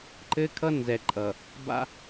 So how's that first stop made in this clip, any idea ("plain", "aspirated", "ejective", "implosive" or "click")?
click